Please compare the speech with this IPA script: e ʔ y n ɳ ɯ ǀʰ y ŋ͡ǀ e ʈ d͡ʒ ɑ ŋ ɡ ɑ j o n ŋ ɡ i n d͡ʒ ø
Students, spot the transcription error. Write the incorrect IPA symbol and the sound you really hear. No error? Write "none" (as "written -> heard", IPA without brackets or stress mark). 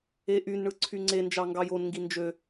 ʈ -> n